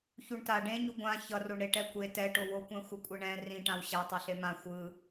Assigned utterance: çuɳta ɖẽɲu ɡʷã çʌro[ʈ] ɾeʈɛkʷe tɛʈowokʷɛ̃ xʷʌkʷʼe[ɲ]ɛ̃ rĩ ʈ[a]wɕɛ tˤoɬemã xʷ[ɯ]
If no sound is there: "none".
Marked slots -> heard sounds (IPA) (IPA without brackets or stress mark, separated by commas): ɳ, ɳ, ã, ɯ